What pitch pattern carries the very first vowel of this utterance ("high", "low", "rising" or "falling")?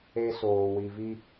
high